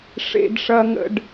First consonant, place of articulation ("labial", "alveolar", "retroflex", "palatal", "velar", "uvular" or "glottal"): retroflex